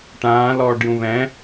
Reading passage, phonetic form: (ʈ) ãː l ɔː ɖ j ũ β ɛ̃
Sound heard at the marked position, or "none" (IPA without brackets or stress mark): ʈ